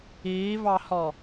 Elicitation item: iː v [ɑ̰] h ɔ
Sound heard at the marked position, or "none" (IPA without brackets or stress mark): ɑ